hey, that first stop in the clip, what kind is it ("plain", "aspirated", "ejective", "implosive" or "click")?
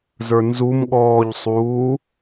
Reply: implosive